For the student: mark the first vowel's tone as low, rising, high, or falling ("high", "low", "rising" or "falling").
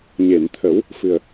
low